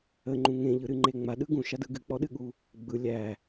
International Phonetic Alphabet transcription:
ə ŋ͡ǃ ũ ŋ ẽ ʎ ɯ ɾ ɨ ŋ͡ǃ e ŋ͡m a ɗ ɯ ɡ ũ ʃ a d ɯ ɡ ɨ k͡p ɔ ɗ ɨ ɠ u | ɡ͡b ɯ lʲ æ

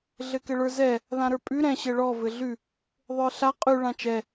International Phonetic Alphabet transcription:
ɮ ɘ k ɘ ɭ ə˞ z ɛ | ð ã ɾ ə˞ pʼ ʉ ɾ ɛ̃ ɕ ɘ ɭ ɔ v ɘ ɮ ʉ | ðˤ ə˞ ɬ a qʼ ʉ ɭ ã t͡ʃ ɛ

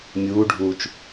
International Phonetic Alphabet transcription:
mʲ uː ɖʱ uː t͡ʃ

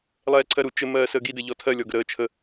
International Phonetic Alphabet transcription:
lˠ ɛː ǀʰ ɜ ɾ u t͡ʃ ɘ m ɜː s əː ɡ i d ɘ ʎ ɔ tʰ ɜ lʲ ɔ ɡ ə ɾ əː t͡ʃʰ ə

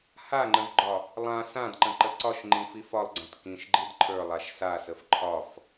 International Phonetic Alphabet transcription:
h a ŋ͡ǃ ə̃ v ɡ͡ǃ ɒ | lˠ ã s ã d ǃ ə̃ ǃ ə ǀ ɒ ʃ ŋ͡ǃ ĩ f i f ɒ lˠ ɡ͡ǀ ã t k ĩ ʃ ɡ͡ǃ i d ǃʰ ə˞ lˠ a ʃ s a s ə f ǃʰ ɒ f

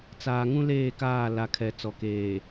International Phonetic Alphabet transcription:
t͡s aː˨ ŋ ũ˦ l eː˦˨ k aː˦˨ l a˨ kʰ ɛ˨ t͡s ɔ˨ k eː˨

